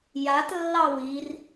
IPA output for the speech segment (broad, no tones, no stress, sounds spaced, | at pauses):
j a t lː ɑ w i r